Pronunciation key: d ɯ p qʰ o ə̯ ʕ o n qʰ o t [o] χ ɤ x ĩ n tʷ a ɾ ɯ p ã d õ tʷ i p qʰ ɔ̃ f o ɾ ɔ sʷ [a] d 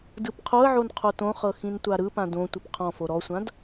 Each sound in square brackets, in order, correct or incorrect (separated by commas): incorrect, incorrect